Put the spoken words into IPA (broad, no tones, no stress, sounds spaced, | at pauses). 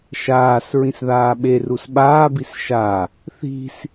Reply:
ʃ aː s ɹ ĩ s ð aː ɓ e r u s ɓ aː b i s ʃ a | θ i̤ s